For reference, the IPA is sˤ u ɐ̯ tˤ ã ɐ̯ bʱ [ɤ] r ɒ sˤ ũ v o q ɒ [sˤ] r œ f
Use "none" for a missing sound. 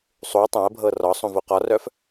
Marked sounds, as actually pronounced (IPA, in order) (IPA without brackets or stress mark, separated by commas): ɤ, none